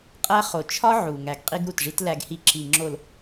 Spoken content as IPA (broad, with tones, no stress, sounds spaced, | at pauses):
qʼ æ˦ χ o˨ t͡ʃʰ ɒ˦ ʕ u˨ ŋ æ˨ ɡ qʼ i˦ ɡ ɾ u˨ t ʐ i˦ t l æ˨ ɡ h i˨ ǁ i˨ ŋ͡ǁ o˨ l